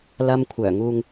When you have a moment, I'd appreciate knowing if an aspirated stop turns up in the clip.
yes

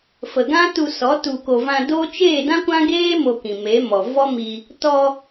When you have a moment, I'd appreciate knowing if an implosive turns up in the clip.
no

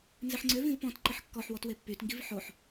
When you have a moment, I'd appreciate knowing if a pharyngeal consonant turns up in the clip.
yes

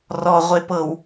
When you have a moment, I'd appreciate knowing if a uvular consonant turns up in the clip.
yes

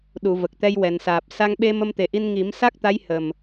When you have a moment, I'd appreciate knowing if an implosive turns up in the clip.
yes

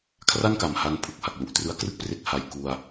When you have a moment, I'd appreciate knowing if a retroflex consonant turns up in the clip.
no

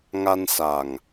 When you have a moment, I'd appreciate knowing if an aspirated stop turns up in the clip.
no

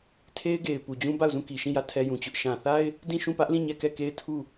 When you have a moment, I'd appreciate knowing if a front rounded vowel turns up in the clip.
no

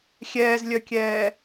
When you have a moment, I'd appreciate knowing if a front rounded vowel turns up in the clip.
yes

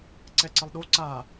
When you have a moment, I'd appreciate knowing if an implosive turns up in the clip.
yes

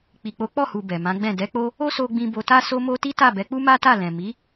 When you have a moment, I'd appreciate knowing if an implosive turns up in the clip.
no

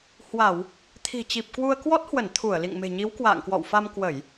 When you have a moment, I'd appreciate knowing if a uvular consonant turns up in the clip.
no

